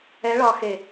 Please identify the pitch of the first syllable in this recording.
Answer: rising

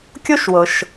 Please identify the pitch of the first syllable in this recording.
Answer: high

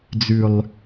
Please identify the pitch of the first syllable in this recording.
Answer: low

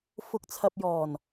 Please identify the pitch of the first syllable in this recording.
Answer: rising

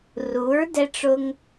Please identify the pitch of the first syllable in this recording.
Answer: rising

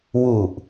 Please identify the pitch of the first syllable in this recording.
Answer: low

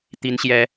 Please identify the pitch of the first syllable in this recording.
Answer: high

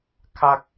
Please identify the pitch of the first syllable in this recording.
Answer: high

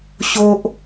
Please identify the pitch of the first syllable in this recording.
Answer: high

